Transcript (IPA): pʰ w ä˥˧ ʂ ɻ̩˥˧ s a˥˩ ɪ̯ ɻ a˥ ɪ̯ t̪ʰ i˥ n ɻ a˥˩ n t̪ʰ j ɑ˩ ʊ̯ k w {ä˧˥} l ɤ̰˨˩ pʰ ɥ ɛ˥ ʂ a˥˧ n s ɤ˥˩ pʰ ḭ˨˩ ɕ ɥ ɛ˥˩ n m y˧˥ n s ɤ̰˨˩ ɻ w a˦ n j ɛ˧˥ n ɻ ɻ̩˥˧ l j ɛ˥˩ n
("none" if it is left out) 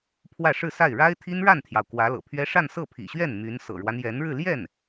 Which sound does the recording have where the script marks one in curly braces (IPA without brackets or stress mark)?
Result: ä˧˥